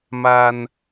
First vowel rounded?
no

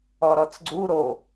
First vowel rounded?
yes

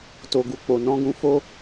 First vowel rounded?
yes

